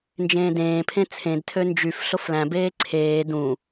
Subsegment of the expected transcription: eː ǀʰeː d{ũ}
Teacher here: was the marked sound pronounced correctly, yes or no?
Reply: yes